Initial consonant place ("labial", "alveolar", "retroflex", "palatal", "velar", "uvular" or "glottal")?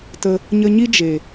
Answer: alveolar